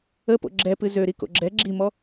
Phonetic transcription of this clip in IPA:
ə p o̰ ɡ͡ǁ ɛ p ɨ z ø ɾ i k o̰ ɡ͡ǁ ɛ ɡ͡ǁ i m ɔ

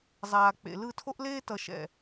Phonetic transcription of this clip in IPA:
zˤ aː˨ k͡p ḛ˨ l ɯ˦˨ tʰ o˦ ʔ l eː˦ t ʌ˨ ʃ ɛ̰˨

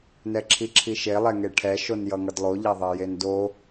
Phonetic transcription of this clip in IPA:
n ɛ ǁʰ i ǁʰ i ʃ e lˠ ɛ ŋ e ʈʰ ɛ ʃ o n j ʌ ŋ ʌ d lˠ o ʎ a ðˤ e j e n d o

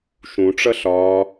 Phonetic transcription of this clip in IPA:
ʃ ũ ʈ͡ʂ ʌ ɬ ɒː

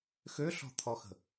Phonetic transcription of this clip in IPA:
x ø ɬ ɔ̤ t̪ʰ ɔ x ə̤

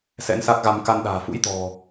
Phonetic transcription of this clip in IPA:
s ɛ̰˧˥ n s a˦˥ k̚ ɣ a˧ m k a˧ n ɗ a̤ː˨˩ f ṵ˧˥ j t̪ ɔ̤˨˩

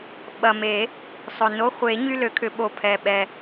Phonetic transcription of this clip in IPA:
ɓ ɐ˨˩ m e˨˩˦ | sˤ ʊ˨˩ n o˧˥˧ χʷ e˨˩˦ ɲ y˧˥˧ l ø˨˩˦ kʰ ʏ˨˩˦ ɓ o˨˩ pʰ ɛ˨˩ ɓ ɛ˨˩

